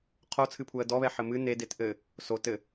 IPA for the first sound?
qʰ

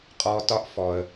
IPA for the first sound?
qʼ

